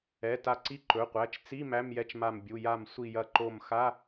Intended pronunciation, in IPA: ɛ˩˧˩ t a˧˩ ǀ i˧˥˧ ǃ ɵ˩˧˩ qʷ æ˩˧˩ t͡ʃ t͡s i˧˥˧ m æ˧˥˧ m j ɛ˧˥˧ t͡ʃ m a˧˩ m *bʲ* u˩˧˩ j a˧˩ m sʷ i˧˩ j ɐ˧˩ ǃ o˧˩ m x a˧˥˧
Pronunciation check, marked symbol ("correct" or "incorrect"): correct